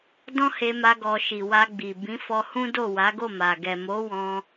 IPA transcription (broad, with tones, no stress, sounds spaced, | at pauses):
d ɔ̃˦ h e˧ m a˧ ɡ ɔ˨ ʃ i˨ w a˧ ɡ͡b i˨ b ĩ˨˦ f ɔ˧ h ũ˦ d o˦˨ w a˨˦ ɡ o˦˨ m a˨ ɡ ɛ˨ m o˨˦ w ɔ̃˧